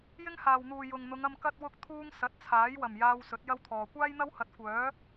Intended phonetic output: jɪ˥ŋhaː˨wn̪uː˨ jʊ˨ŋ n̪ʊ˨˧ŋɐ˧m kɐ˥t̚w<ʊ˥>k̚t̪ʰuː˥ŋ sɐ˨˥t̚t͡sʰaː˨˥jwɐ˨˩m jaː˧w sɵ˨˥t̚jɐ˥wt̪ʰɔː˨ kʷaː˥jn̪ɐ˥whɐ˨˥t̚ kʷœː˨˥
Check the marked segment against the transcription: correct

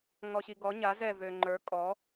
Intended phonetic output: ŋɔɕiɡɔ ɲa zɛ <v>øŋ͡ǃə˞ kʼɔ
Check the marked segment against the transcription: correct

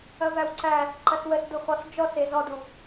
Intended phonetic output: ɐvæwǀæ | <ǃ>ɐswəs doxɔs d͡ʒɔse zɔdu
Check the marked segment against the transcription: correct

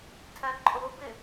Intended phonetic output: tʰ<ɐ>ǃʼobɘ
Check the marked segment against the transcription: correct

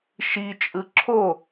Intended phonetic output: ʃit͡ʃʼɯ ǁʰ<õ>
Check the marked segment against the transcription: incorrect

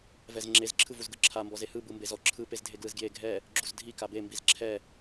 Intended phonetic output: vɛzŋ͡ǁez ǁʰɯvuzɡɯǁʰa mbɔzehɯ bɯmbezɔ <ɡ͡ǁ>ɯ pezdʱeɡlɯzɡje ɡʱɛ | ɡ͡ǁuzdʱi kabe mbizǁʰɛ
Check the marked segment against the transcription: incorrect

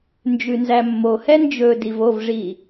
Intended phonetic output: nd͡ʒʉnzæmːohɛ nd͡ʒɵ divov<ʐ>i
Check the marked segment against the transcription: correct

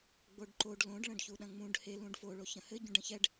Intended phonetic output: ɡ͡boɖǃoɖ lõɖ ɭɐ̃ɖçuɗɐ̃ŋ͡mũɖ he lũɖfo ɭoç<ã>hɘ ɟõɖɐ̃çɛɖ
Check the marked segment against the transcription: incorrect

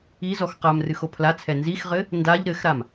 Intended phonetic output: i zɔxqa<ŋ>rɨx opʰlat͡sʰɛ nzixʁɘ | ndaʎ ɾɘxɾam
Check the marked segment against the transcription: incorrect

